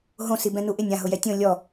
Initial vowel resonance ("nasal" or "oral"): nasal